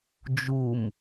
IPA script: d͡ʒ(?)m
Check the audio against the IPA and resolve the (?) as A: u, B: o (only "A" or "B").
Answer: A